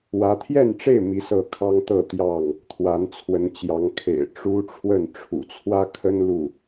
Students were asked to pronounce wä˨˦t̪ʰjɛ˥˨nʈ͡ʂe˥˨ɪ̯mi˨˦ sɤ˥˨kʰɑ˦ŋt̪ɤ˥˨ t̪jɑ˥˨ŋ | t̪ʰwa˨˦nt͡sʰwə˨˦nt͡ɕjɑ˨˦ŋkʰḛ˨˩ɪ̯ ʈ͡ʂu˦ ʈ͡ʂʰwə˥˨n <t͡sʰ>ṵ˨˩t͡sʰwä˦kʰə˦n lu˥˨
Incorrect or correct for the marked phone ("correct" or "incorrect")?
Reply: incorrect